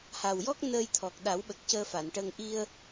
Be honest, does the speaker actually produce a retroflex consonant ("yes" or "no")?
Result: yes